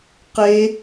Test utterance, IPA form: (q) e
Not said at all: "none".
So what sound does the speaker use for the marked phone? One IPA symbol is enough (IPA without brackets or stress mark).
q